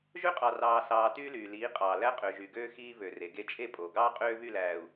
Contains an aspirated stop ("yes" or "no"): no